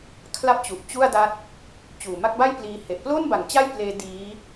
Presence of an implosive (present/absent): absent